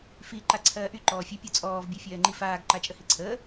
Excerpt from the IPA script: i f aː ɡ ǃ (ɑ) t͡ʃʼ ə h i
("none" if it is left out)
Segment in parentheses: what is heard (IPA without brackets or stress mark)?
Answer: a